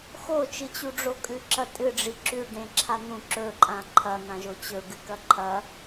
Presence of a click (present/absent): present